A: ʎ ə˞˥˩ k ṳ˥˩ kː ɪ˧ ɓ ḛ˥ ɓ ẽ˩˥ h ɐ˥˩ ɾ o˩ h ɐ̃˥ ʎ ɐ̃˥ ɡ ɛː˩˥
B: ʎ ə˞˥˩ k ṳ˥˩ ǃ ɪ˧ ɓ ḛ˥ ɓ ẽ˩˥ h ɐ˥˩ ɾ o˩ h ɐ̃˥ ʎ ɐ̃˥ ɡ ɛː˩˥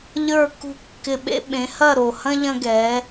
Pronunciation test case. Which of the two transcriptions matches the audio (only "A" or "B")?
A